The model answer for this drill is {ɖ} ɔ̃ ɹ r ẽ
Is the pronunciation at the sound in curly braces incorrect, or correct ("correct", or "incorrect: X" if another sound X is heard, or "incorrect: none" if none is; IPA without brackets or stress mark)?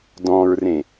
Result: incorrect: d